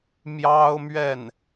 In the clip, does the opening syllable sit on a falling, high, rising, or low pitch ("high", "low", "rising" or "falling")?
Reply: high